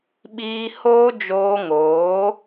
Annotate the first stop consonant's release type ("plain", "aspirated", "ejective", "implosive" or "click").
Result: implosive